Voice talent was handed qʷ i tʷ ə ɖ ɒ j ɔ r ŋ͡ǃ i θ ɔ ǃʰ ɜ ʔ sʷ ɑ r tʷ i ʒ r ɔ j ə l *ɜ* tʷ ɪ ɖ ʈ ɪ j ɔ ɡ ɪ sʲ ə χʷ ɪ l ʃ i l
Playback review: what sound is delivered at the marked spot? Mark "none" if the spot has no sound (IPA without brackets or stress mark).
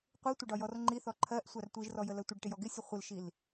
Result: ɜ